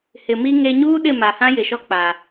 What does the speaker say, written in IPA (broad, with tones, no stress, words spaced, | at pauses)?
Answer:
hɪ˨mi˦ŋe˦ ɲuː˦ɗɪ˦˨ ma˨hã˦jɪ˨ʃɔ˦ k͡pa˨